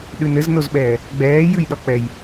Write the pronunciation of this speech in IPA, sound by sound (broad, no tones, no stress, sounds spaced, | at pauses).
ɗ ʉ n ɘ z n o z ɓ ɛː | ɡ͡b ɛː j ʉ j ɗ ɒ k͡p ɛ j